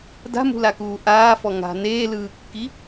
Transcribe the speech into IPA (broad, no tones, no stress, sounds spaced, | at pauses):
d a̤ m ṳ l a k uː ʔ aː f ɔ ŋ a̤ n eː l ɯː kː i